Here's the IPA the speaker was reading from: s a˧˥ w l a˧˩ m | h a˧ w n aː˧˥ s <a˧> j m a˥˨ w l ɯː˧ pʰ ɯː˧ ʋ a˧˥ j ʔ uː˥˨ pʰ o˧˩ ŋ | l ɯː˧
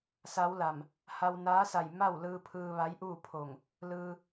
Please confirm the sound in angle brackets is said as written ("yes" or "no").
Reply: no